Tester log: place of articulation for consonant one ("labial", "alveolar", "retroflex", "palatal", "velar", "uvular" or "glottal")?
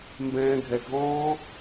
labial